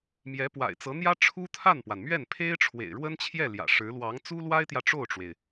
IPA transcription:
mjɛ˧˥pwa̰˨˩ɪ̯t͡sɤ˧˥n̪jä˥ ʈ͡ʂʰu˥t̪ʰa˥˩npwa˩nmɥɛ˥˩n pʰe˥ɪ̯ʈ͡ʂʰwḛ˨˩ɪ̯ɻwə˥nt͡ɕʰjɛ˥˩ ljä̰˨˩ʂɻ̩˧˥ lwɑ˧˥ŋt͡su˥lwa˥ɪ̯t̪jä˨ ʈ͡ʂo˥˩ʊ̯ʈ͡ʂwe˩ɪ̯

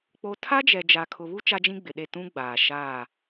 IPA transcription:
k͡po˦ tʰa˦d͡ʒɛ˨ d͡ʒa˨kʰʊ˨βu˦ t͡ʃa˦d͡ʒĩ˦ɡ͡bɪ˨ɗe˦˨ tũ˦ɡ͡baː˨ ʃaː˦˨

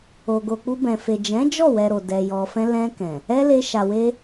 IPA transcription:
o˨ɡo˨k͡pu˧ bɛ̃˨fe˨ d͡ʒɛ̃˨˦d͡ʒɔ˦˨wɛ˨ ɾo˨dɛ˨jɔ˨fɛ̃˧ lɛ̃˧ kɛ̃˨ | ɛ˦le˧ ʃa˨we˧

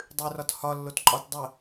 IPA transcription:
dˤʉrɒt hɒ lːotǃʼɒt dˤə

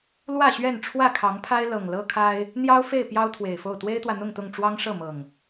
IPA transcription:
lwä˥˨ɕɥɛ˥˨n ʈ͡ʂʰwä˥˨kʰɑ˨˦ŋpʰa˦ɪ̯ lɤ˨˩ŋlɤ˦kʰa˦ɪ̯ | n̪jɑ˦ʊ̯fe˥˨ɪ̯ pjɑ˦ʊ̯t̪ʰwe˨˩ɪ̯fo˥˨ʊ̯ t̪we˦ɪ̯t̪wä˨n̪ʊ˥˨ŋt̪ʊ˥˨ŋ ʈ͡ʂwɑ˦ŋʂɤ˥˨mɤ˨˩ŋ

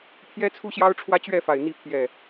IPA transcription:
pʰjɛ˦t͡sʰu˦ ɕjɑ˦ʊ̯ʈ͡ʂʰwä˦t͡ɕɥɛ˥˨fa˨˩ɪ̯ n̪i˨˦pʰjɛ˨˩

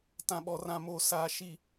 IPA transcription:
tã˨ɓɔ˨rã˨moː˨ saː˨ ʃi˨

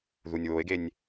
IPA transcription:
ðunʲwoe̯ɡenʲ

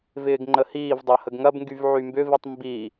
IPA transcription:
vɪːɡŋ͡ǃəhiːvdˤɐ həɡŋɐbŋɡyv ʕymbʏvitˤ mbi

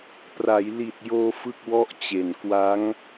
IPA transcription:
pra˩˦jli˨˩t̚joː˧ fɯ˥˩k̚wɔ˥˩ʔt͡ɕe˨˩n kwa˦˥ŋ

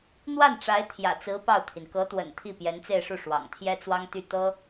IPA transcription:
n̪wa˥˩n ʈ͡ʂa˧˥ɪ̯t̪ʰjä̰˨˩t͡sɹ̩˧˥ pɑ˥˩ʊ̯t̪ʰi˩n kɤ˧˥t̪wə̰˨˩n t̪ʰi˥˩pjɛ˧˥nt͡se˥˧ɪ̯ʂu˥˩ ʂwɑ̰˨˩ŋt̪ʰjɛ˥t͡swɑ˥ŋt̪y˥˩ t̪ɤ˥

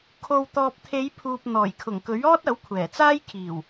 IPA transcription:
kʰo˨wt̪ɔː˨p̚t̪ʰe˨˧jpʰuː˨p̚ n̪ɔː˨˩jkʰʊ˨˩ŋkɵ˨˥ɥɔː˥t̚ ɐ˨˥wkʷʰɛː˨˩t͡saː˥j kʰiː˨˩w

